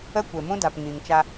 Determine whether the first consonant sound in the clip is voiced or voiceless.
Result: voiceless